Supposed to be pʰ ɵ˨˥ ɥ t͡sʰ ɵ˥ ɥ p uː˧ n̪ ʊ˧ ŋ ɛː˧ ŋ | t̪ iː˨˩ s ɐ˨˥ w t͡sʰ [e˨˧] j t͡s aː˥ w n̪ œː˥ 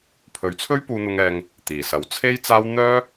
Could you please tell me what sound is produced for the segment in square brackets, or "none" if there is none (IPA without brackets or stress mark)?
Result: e˥